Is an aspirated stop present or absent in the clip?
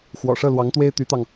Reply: absent